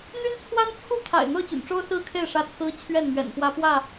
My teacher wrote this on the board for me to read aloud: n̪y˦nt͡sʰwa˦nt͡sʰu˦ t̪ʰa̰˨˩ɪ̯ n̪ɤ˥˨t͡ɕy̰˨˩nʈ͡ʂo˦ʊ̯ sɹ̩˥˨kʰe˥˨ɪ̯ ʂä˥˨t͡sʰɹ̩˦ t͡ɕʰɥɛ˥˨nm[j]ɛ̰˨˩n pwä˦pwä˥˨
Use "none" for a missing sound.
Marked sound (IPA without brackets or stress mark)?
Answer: ɥ